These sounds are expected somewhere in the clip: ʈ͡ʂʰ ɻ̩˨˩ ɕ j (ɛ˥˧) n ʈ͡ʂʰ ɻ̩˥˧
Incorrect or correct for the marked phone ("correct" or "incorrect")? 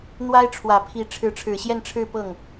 correct